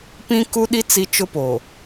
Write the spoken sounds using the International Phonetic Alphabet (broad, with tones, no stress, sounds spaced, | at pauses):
p ĩ˦ k u˦ ɗ i˦ t͡s i˦ t͡ʃ ʊ˦ p o˨